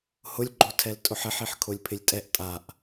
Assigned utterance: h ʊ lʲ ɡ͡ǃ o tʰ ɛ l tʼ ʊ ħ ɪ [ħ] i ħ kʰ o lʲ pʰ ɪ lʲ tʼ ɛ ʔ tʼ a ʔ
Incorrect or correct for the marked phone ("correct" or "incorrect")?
correct